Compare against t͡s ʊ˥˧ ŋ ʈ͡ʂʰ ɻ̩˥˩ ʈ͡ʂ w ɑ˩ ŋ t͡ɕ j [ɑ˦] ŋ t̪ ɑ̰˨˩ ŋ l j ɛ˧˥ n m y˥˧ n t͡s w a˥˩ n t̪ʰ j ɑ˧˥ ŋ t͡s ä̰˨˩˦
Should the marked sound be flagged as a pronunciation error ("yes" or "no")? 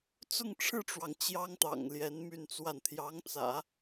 yes